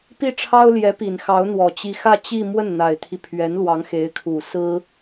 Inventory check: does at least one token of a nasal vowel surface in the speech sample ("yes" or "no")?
no